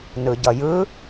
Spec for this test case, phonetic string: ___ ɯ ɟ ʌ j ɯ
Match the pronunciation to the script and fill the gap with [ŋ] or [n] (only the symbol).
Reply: n